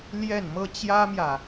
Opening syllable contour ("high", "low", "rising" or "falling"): falling